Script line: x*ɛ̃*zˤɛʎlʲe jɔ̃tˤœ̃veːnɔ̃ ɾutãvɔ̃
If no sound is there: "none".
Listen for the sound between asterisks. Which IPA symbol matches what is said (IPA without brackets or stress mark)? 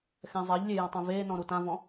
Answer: ɛ̃